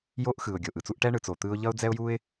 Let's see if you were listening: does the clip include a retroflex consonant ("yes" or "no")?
yes